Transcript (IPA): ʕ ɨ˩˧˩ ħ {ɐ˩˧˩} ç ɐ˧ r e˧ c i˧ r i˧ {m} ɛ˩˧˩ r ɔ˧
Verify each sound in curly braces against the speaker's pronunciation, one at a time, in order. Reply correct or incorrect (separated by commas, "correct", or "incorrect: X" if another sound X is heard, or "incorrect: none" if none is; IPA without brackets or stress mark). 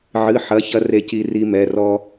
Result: correct, correct